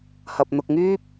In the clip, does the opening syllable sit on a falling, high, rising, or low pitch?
low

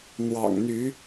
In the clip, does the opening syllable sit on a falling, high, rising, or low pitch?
low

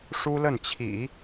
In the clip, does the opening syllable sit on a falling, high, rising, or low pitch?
high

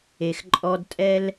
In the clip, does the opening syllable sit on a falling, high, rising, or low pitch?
low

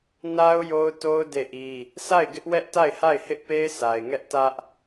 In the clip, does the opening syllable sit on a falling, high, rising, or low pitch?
high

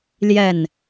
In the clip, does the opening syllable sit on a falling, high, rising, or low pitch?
falling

